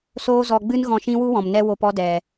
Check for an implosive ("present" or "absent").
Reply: absent